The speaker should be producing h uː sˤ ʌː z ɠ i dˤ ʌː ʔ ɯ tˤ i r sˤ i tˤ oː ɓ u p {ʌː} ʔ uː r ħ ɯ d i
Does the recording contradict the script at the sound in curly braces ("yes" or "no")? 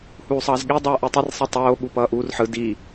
no